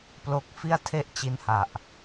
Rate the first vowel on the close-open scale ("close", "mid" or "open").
mid